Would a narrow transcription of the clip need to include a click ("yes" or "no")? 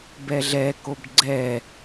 yes